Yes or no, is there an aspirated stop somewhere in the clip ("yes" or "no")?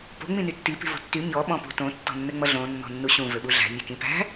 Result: no